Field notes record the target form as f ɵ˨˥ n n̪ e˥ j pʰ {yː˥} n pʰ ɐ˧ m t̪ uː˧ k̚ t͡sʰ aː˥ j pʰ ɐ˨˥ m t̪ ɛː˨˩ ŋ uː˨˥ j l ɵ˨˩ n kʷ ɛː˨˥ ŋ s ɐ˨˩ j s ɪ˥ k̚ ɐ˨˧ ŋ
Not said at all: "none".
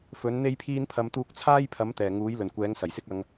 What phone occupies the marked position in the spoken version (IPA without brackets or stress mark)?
iː˥